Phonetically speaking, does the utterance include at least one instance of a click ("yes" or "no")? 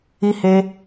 no